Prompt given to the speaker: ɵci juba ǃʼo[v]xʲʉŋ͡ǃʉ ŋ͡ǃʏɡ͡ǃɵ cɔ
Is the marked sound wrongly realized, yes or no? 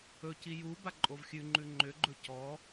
no